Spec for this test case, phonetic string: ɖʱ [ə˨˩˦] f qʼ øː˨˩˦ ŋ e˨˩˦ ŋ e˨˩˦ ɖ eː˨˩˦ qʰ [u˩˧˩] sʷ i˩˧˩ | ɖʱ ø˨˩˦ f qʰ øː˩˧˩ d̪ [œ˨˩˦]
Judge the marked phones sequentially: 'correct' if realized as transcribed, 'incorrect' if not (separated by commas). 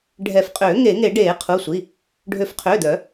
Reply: incorrect, correct, correct